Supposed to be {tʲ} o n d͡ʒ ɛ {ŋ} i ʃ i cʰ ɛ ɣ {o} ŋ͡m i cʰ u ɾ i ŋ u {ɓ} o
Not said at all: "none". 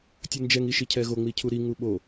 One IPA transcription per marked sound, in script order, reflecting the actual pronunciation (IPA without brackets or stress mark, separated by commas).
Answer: tʲ, ŋ, o, ɓ